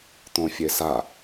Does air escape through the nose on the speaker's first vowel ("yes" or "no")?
yes